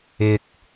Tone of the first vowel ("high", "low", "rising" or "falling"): low